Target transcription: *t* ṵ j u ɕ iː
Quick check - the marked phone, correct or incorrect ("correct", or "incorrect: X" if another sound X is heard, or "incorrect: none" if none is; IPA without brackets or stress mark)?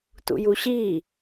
correct